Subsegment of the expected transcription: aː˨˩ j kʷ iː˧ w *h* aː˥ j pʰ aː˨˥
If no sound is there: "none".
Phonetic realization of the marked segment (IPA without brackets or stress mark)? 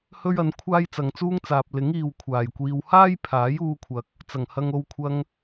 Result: h